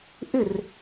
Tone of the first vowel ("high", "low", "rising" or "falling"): falling